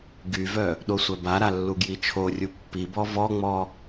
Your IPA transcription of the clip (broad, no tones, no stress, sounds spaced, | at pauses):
ɡ y v œ | ɗ o sʷ œ b a ɾ a lː u ɡ j i t͡ʃʰ o rʲ u pː i b ɔ v ɔ ŋ͡m ɔ